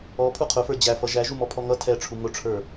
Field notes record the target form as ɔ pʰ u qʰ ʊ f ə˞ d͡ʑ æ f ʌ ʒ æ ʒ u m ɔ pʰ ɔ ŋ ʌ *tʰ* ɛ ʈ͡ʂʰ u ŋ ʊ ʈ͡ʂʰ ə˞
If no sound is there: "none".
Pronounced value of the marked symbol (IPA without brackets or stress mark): tʰ